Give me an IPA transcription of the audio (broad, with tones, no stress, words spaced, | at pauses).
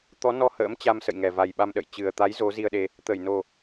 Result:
t̪ɔ˨˦nɔ˧ hə̰ː˧˥m t͡ɕa˧msə̰˧˨jŋɛ˨˩ va˨˩jɓa˧mɗə̰˧˨j t͡ɕɨ˨˩ə̯t̪a˨˦j zo˨˦zi˧ə̯ɗe˧ | t̪ə˧˩jno˨˩